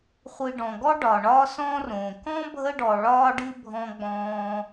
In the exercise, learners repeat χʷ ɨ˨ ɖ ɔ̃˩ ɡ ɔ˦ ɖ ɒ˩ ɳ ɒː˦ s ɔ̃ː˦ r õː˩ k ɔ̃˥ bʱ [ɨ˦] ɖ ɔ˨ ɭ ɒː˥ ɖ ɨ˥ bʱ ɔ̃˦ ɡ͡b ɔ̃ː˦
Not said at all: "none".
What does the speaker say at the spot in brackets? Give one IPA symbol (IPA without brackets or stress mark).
ə˦